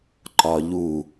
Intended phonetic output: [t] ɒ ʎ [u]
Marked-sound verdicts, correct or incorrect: incorrect: ǃ, correct

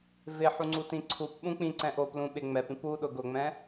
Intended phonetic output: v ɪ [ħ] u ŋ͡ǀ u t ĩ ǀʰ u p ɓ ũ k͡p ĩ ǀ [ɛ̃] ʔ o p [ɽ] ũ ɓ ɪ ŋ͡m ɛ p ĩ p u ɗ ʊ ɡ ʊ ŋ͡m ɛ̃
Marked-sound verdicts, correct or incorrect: correct, correct, incorrect: l

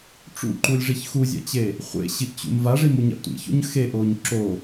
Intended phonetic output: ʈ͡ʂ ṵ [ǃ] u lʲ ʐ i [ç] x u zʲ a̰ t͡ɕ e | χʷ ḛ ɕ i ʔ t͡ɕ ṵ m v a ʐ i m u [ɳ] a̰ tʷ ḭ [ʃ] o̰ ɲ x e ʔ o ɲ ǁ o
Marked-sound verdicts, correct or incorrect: correct, correct, incorrect: ɲ, incorrect: ç

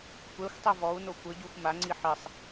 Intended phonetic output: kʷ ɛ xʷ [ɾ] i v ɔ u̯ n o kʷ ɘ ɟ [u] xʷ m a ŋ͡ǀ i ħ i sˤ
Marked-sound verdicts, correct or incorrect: incorrect: tˤ, correct

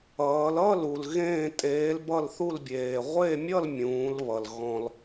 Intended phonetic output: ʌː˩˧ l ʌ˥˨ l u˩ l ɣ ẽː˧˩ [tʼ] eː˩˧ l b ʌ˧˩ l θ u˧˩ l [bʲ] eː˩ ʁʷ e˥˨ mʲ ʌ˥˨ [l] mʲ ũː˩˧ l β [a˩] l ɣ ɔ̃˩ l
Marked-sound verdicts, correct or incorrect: correct, correct, correct, incorrect: ʌ˩

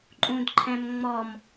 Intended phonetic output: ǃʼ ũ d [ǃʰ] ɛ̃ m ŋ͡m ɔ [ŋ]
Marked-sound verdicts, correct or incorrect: correct, incorrect: m

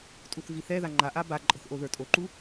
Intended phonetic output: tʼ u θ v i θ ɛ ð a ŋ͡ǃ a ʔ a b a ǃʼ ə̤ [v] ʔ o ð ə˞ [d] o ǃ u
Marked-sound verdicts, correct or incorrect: incorrect: θ, incorrect: tʼ

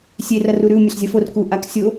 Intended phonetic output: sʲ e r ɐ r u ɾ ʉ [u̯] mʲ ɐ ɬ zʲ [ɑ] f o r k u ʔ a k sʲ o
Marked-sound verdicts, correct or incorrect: correct, incorrect: ɐ

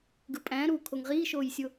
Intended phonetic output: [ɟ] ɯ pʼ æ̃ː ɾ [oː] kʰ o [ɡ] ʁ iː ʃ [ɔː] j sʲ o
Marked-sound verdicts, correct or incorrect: incorrect: ɡ, incorrect: uː, incorrect: ŋ, incorrect: oː

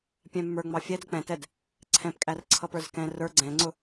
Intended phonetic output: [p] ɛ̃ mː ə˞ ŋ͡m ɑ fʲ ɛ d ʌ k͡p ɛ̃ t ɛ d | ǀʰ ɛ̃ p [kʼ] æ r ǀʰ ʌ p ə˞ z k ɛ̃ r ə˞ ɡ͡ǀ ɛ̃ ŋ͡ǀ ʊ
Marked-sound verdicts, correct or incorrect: incorrect: pʲ, correct

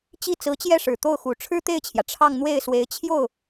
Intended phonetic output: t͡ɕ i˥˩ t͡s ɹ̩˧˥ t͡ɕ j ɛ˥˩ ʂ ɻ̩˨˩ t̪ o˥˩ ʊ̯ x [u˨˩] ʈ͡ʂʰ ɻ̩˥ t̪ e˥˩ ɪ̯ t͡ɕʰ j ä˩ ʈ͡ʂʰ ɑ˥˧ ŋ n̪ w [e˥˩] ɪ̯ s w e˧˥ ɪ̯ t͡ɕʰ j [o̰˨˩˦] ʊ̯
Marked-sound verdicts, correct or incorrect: correct, correct, incorrect: o˥˩

